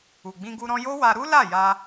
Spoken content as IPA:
u˨ ɡ͡b ĩ˧ ɡ u˧ ɾ ɔ̃˧ j o˦ w a˧ ɾ u˦ l a˦˨ j a˧

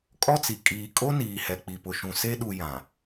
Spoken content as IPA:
kʼ ɔ˦ t͡s i˨ kʼ iː˨ kʼ o˦ n iː˨ h ɛ˨ k͡p i˨ p ʊ˨ ʃ ũ˨ s e˦ ɗ u˨ j ã˨

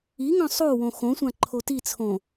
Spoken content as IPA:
i ŋ œ̃ sˤ o w õ x õ sʷ ã ǃʰ o t i t͡sʰ õ

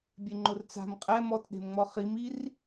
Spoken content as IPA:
bʲ e ŋ͡ǃ ʊ r t͡s a̤ m qʼ ɛ m ɔ t ɗ e̤ m ŋ͡m ɔ χ i m i r

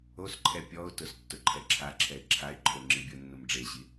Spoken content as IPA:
o s ǃʰ ɛ pʲ ɔ ʊ̯ t ʊ s tː ʊ ǃʰ ɛ ǁʰ a ǁʰ ɛ ɪ̯ ǁʰ a ɪ̯ ǃʰ o ŋ͡ǁ i bʲ ʊ nː ʊ m ɖ͡ʐ e ɕ i

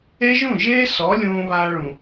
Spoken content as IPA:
e˦ ʒ ũ˦˨ ʒ eː˦ s ɔ˨˦ lʲ ũː˧ β aː˧ ɭ ũ˨

